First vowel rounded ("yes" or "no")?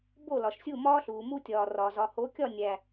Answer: yes